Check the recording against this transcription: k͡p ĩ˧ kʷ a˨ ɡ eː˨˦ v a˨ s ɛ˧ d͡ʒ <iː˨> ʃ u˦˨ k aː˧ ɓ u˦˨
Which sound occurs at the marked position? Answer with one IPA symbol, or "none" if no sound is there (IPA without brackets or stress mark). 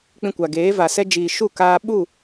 iː˨